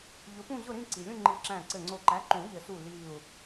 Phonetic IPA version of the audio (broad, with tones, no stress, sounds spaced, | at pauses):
ʎ ʊ˨˥ p ũ˥˧ ʑ ʊ˥˧ ɾ ĩ˥˧ ǀ i˩ lʲ ũ˥˧ ŋ͡ǃ i˧˩ ǁ æ̃˧˩ ǀ ɘ˧˩ ŋ͡ǀ o˧˩ ǃ æ˨˥ ǃ ũ˨˩˦ ʎ ɘ˨˩˦ s u˧˩ l i˧˩ u̯